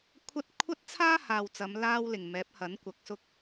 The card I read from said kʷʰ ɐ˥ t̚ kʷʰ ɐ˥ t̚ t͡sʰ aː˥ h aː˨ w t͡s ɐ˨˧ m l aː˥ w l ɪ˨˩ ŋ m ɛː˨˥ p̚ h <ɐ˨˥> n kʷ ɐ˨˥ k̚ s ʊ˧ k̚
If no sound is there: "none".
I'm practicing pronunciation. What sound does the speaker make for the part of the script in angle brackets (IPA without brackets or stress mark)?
ɐ˨˥